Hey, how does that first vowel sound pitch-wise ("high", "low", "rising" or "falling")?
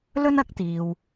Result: high